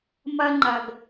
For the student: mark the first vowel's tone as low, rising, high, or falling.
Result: high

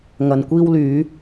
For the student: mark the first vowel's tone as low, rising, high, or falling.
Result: low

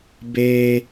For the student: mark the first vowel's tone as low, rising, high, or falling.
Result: high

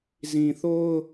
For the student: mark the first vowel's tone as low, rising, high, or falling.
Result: low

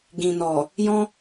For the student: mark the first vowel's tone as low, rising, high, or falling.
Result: low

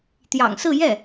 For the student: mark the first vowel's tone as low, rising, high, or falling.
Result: low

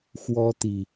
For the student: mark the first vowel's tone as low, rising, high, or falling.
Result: high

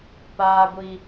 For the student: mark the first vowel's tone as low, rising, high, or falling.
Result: high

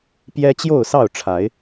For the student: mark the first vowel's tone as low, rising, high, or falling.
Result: high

